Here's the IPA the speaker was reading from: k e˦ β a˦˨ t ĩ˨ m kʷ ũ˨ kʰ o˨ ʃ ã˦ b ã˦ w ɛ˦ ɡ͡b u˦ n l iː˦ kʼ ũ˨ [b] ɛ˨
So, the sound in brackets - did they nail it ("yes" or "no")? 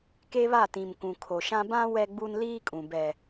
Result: yes